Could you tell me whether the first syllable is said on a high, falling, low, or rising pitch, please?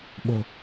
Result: low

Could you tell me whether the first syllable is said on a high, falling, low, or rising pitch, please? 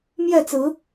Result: falling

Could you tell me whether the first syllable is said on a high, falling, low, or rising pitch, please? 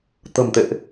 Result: low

